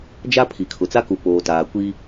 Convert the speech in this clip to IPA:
d͡ʒ a˦ pʰ i˨ kʰ ʊ˨ t͡s a˦ k u˨ p oː˨ t aː˨ kʷ i˦

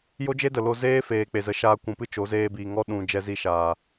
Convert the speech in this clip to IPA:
j o˦ d͡ʒ e˦ d ə˨ l o˧ z eː˦ f eː˨ k͡p e˨ z ə˨˦ ʃ aː˧ kʷ ũ˨ p ɨ˦ t͡ʃ o˨˦ z eː˧ b iː˨ ŋ ɔ˦ ɗ ũ˨ d͡ʒ ɛ˧ z i˧ ʃ aː˨

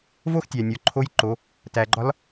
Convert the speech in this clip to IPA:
v o˥ x tʲ æ˩ nʲ ɒ˩˧ ǃʰ o˧˥ j ǃ o˩˧ | t æ˩ ɡ͡ǃ ɒ˧˥ l

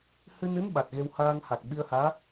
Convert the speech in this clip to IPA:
h ɨ˧ n ɨ˧˥ n ɓ a˨˩ t̚ ɣ e˧ w h aː˧ ŋ h a˨˩ k̚ ɓ i˧ ə̯ h aː˧˥

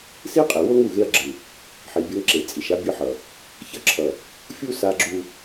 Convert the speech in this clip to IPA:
s i˦ qʼ e˨ w o˦ ŋ u˦˨ ɣ e˦ ɐ̯ ɡ͡ǁ ɯ˨ | ħ i˨ bʲ ʌ˦ ŋ ǁ e˨ t͡sʼ i˨ ʃ a˦ bʲ ɯ˦ ħ ʌ˨ | ç ʌ˦ ǁʰ ʌ˨ | fʲ u˦ s a˦ ɡ͡ǁ u˦

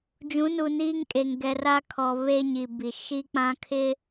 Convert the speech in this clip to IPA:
d͡ʒ ũ˨˦ n u˨ n iː˦ ŋ kʼ e˨ ŋ ɡ ɛ˨ r a˦ kʰ ɔ˨ β e˦ ɲ i˨ b i˨ ʃ i˦ k͡p ã˦ kʰ ɪ˦

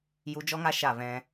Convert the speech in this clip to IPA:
j u˧ d͡ʒ ɔ˦ ŋ a˦ ʃ a˦˨ v ɛ̃˧

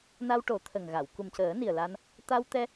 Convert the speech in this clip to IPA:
n a˧ w ʈ o˨˩˦ t̪ʰ ə˨˩ ŋ ɣ a˨˩˨ w k u˨˩ m c əː˨˩˦ n i˨˩ ə̯ l a˧ n | t̪ a˧ w t̪ ɛ˧

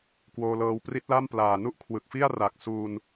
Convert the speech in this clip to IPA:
k w oː˧ l ɤː˧ w p r i˦˥ t̚ l a˥˩ m p l aː˨˩ n u˥˩ ʔ kʰ w ɯ˨˩ k̚ f i˥˩ a̯ r a˨˩ k̚ s u˧ n

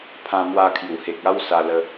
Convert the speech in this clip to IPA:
pʰ ã˧ m w a˧ kʰ j u˨˩ h e˨ k̚ a˦ w s a˧ l ə˧

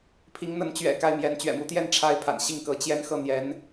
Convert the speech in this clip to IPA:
pʰ i˧˥ ŋ n̪ ə˧˥ n t͡ɕ ɥ ɛ̰˨˩ k a˥˩ ɪ̯ m j ɛ˧˥ n t͡ɕ ɥ ɛ̰˨˩ m u˧˥ t̪ j ɛ˥˩ n ʈ͡ʂʰ a˥ ɪ̯ pʰ a̰˨˩ n ɕ i˥˩ ŋ k ɤ˧˥ t͡ɕ j ɛ˥ n x ɤ˥˩ n̪ j ɛ˧˥ n

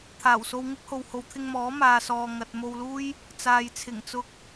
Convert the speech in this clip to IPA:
t̪ʰ aː˨˩ w s o˧ w ŋ ɪ˥ k̚ h o˨ w h o˨˧ w t̪ʰ ɪ˧ ŋ m ɔː˨˥ m aː˨ s ɔː˨ ŋ ɐ˨ t̚ m o˧ w l uː˥ j | t͡s aː˨ j t͡sʰ ɪ˨˩ ŋ t͡s ʊ˧ k̚

